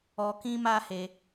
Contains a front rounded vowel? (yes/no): no